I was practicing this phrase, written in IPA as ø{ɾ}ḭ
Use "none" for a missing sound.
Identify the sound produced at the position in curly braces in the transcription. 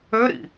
ɾ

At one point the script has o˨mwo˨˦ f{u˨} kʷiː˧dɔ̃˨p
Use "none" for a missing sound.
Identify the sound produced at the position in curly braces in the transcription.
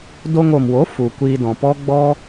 u˨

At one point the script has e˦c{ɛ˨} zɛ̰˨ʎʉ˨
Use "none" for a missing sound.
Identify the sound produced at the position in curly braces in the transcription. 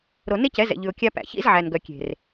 ɛ˨˦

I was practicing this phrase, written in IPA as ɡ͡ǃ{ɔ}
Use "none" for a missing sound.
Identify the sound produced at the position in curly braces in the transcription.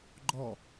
ɔ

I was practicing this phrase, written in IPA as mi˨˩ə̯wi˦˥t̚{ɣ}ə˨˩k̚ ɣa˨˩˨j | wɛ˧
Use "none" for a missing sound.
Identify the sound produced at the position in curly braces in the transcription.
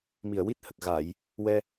h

